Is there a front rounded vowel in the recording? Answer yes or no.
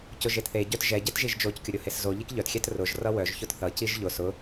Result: yes